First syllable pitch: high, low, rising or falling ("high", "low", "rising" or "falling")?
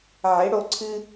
rising